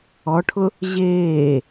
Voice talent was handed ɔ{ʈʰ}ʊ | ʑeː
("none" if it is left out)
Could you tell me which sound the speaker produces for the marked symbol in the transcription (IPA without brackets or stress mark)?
ʈʰ